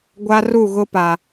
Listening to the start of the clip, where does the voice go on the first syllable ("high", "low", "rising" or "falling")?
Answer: high